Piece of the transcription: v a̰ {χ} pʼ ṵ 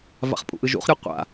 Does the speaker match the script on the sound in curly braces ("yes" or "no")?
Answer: yes